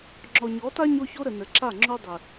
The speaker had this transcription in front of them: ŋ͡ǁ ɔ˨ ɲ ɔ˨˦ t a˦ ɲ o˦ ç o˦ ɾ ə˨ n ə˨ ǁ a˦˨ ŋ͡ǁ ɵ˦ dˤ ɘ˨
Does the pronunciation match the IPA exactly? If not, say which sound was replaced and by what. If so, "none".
ɵ˦ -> o˦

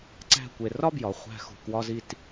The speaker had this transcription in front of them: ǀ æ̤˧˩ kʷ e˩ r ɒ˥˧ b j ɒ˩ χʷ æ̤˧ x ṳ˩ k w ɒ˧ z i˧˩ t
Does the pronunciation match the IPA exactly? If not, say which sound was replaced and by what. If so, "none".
none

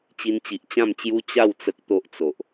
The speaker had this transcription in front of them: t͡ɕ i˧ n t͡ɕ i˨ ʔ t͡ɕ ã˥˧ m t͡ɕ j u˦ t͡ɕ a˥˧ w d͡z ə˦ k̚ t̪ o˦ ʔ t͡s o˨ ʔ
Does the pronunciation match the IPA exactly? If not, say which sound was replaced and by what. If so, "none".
d͡z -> t͡s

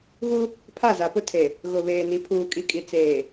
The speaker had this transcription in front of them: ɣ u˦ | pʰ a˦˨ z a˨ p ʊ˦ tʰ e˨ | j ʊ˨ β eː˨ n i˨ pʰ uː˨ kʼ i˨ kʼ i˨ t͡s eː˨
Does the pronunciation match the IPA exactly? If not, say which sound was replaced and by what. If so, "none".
j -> ɣ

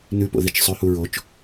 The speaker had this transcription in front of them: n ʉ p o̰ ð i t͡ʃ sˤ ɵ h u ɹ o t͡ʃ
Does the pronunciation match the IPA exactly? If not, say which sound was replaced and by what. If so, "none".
none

